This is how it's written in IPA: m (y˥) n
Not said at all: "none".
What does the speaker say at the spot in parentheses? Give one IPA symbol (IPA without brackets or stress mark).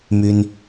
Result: y˥